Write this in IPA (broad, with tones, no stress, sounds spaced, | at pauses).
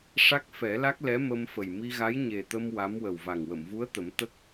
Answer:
ʂ a˦˥ k̚ f ɛ˨˩˦ l a˦˥ k̚ l ɛ˧˥ m ə˧ m f ə˨˩ j m i˧ ɣ a˧˥ j ɲ e˨˩ t̪ ə˧ m w a˧˥ m w ə˨˩ w v a˨˩ ŋ w ə˨˩˨ m v u˧˥ ə̯ t̪ ə˨˩˦ m t̪ ə˦˥ k̚